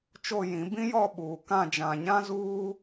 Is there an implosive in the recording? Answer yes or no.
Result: yes